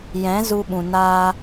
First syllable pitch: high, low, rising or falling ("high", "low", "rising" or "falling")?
rising